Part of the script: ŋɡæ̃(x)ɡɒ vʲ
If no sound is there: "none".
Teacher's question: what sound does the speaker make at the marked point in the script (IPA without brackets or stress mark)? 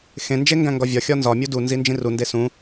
ŋ